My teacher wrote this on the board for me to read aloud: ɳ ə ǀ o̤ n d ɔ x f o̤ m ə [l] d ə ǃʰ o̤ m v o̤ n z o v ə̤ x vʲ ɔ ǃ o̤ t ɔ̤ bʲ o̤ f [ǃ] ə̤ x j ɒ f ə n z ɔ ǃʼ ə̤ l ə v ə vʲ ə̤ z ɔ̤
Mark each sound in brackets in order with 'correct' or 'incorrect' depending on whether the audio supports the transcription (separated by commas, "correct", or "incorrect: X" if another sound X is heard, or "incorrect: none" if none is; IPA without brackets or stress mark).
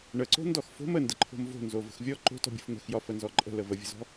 incorrect: n, incorrect: n̪